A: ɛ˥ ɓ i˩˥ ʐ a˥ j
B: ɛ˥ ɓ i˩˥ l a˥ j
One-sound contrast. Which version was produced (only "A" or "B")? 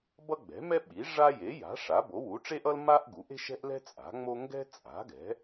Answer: A